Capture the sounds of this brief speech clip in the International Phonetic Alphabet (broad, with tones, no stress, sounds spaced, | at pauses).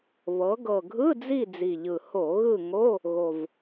β ɤ˩˧ ɡ ɤ˨˩ ɡʱ ɯ˧˥˧ d͡z i˦˨ d͡z i˨˩ ʎ ɯ˨˩ h o˧˩˧ ɣ ɯ˦˨ ŋ o˧˥˧ | ɣ o˨˩ v